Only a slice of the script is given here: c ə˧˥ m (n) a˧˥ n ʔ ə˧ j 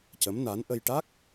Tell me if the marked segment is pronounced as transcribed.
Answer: yes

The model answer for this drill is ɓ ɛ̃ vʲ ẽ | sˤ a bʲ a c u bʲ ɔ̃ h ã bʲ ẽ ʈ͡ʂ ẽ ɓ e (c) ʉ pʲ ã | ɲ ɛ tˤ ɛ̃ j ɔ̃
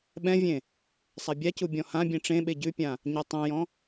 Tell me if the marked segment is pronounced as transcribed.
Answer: no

